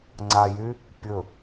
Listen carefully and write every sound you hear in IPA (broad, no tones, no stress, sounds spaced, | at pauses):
ŋ͡ǀ a j y | pʲ ɵ